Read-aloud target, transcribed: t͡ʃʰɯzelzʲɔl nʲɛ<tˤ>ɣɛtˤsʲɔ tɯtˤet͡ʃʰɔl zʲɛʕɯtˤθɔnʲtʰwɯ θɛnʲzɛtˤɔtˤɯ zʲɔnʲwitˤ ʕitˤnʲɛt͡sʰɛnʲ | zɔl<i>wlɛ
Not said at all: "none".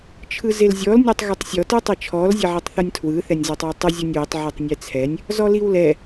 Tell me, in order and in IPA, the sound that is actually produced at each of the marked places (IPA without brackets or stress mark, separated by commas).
tˤ, i